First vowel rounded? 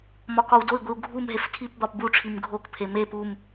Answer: yes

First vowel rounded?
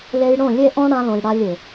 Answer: no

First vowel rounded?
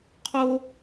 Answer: yes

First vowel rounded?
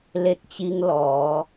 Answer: no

